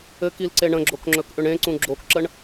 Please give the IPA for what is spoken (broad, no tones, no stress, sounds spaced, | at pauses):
ɘ k i l ǀ e ɳ ə̃ ɡ͡ǁ o k ŋ͡ǁ ɵ k ʔ ʏ ɳ ẽ ǀ ũ ɡ͡ǁ o k ǁ ə ɳ